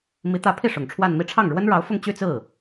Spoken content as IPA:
m i˧˥ t̪ ä˧˥ pʰ i˥˩ ʂ ʊ˨˩ ŋ ʈ͡ʂʰ w a˥˧ n m i˥˧ ʈ͡ʂʰ ɑ˥˩ ŋ ɻ w ə˥ n ɻ ɑ˧˥ ʊ̯ f ʊ˥˧ ŋ t͡ɕ y˥˧ t͡s ɹ̩˥˩

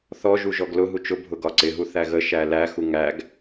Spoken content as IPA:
θ ɔ ʒ u ʒ ɔ ɡ l ʊ ɦ u t͡ʃ ʊ bʱ ʊ ɡ ɒ ǀ ɪ ɦ u θ æ ɣ ə ʃ æ l æ x u ŋ æ ɡ

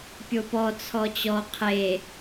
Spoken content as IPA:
pʲ o p ɔ t͡sʰ ɔ t͡ɕ ɔ qʰ e

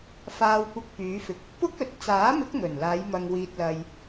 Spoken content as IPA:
f aː˧ w kʷ ɪ˧ k̚ p yː˨˧ f ɪ˨ k̚ | p ʊ˥ k̚ ɵ˨˥ t̚ t͡s aː˨˥ m ɪ˨˥ k̚ ŋ ɵ˨˩ n l aː˨˧ j m ɐ˨ ŋ w iː˨ t̚ l ɐ˨ j

